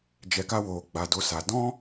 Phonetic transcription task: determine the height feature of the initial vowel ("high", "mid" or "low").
mid